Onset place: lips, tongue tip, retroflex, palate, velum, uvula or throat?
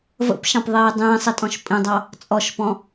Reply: lips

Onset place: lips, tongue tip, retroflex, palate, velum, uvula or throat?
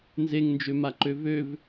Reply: tongue tip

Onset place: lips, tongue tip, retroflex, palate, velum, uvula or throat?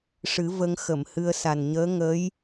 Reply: retroflex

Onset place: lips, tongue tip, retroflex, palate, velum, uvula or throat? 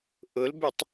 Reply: throat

